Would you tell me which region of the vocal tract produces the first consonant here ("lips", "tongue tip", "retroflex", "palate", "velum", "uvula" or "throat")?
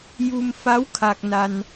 palate